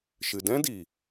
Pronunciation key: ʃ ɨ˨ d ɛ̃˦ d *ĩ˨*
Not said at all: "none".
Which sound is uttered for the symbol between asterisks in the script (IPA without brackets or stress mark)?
i˨